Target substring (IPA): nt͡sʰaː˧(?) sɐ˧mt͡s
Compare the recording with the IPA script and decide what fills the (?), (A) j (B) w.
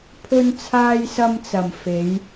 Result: A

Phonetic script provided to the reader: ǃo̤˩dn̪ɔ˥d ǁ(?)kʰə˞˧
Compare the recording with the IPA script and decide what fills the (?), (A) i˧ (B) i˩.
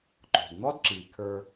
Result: B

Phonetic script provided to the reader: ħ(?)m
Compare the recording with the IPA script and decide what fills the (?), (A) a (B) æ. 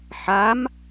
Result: A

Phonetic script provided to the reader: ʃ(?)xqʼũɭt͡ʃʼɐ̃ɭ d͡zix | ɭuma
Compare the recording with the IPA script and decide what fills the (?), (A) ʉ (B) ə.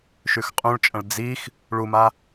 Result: A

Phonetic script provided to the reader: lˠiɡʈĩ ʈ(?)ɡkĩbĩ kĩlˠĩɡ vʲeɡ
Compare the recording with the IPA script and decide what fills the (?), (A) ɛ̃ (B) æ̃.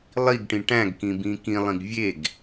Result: B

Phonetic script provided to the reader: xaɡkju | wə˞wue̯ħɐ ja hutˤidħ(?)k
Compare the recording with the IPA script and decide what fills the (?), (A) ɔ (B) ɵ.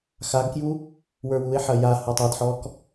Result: A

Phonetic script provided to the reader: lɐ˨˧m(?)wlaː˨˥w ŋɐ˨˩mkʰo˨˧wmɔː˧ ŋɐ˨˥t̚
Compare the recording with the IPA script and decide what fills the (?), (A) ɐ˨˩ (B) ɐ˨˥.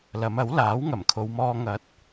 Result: B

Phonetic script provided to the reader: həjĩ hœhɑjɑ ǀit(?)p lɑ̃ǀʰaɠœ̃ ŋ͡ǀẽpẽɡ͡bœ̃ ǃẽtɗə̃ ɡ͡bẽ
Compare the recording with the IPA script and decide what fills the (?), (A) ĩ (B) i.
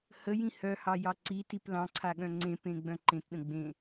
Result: B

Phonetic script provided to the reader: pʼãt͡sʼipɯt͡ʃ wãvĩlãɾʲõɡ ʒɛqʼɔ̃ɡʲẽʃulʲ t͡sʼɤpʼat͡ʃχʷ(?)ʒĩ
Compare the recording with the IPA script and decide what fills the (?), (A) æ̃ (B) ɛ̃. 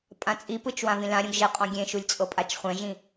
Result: B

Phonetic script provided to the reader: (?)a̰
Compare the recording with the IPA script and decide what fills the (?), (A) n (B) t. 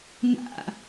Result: A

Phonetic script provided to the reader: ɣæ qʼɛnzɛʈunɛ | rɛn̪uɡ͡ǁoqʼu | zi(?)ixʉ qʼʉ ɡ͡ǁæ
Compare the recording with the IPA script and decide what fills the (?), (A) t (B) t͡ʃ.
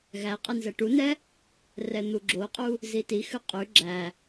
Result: A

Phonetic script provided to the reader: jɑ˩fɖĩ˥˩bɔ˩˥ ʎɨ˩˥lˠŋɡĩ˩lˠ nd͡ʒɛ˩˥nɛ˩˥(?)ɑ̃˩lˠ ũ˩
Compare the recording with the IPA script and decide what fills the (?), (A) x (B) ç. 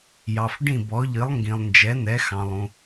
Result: A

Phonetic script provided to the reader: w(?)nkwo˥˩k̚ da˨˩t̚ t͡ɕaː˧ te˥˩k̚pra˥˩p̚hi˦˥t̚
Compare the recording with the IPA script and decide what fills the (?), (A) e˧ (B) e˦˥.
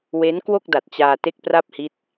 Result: B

